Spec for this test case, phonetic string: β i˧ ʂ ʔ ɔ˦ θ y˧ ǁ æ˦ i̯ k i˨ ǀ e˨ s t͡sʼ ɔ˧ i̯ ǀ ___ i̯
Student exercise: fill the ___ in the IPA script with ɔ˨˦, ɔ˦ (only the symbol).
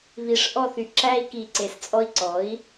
ɔ˨˦